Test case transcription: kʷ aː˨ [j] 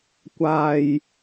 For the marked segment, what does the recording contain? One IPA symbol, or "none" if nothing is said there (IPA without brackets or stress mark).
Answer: j